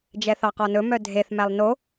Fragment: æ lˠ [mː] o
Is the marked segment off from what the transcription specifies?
yes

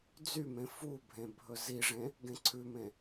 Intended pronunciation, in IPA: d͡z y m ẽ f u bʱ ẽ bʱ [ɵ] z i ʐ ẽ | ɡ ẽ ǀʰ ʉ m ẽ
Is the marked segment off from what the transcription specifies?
no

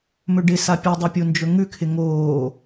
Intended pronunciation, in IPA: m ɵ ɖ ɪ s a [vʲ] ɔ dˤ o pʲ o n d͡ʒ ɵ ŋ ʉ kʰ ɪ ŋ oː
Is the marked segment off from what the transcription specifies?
yes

